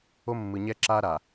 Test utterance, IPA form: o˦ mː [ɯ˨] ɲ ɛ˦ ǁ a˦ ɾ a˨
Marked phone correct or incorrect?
correct